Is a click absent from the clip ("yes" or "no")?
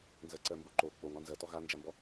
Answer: no